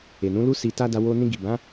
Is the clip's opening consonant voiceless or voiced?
voiced